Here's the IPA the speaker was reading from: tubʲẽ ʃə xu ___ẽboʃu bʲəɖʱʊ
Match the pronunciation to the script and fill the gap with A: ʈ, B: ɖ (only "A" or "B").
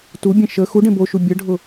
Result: B